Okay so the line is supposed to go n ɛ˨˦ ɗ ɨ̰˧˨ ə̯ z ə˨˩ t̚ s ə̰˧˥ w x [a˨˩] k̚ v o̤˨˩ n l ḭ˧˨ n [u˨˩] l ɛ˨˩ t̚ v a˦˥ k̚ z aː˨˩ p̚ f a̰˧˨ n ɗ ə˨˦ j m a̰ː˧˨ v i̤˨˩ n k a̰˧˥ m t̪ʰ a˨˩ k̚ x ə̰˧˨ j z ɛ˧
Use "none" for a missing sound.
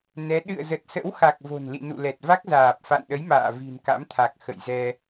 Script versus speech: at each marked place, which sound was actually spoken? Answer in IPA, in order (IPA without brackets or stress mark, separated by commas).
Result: a˨˩, ṵ˧˨